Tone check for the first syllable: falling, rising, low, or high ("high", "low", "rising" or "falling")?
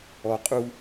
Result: low